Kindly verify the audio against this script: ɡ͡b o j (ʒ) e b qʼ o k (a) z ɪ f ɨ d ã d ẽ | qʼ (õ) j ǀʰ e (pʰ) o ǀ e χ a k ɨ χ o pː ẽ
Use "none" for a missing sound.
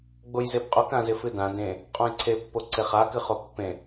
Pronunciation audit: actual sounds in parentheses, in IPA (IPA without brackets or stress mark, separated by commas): z, ã, õ, pː